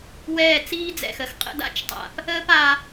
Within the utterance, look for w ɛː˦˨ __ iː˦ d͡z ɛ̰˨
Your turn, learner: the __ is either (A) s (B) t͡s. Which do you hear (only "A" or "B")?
B